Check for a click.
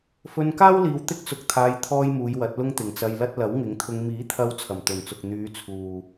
absent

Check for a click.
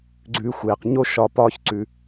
present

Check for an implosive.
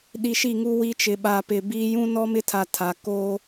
present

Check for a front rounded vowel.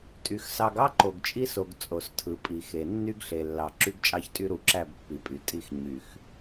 present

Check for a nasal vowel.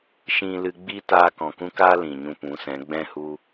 present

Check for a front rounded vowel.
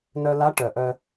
present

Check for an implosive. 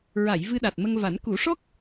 present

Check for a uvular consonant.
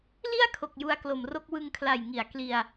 absent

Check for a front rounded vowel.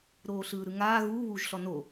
absent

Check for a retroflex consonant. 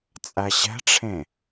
present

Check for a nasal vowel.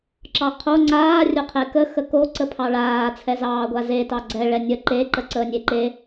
absent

